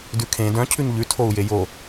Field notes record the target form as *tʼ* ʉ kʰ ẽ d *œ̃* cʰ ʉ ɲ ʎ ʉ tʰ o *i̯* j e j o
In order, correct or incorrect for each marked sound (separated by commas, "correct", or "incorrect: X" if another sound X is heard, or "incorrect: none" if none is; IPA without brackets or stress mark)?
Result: incorrect: d, correct, incorrect: u̯